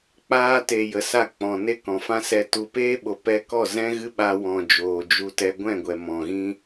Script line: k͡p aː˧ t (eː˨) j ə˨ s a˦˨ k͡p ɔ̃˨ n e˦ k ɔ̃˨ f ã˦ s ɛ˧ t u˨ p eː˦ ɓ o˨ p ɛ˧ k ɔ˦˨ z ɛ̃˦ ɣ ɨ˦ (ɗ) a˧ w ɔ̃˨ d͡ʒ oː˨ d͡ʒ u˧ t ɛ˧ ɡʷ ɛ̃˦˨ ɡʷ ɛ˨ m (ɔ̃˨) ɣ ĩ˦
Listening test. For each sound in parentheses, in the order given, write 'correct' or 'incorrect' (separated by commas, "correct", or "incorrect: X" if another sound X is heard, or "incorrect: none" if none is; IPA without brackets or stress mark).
incorrect: e˨, incorrect: ɓ, correct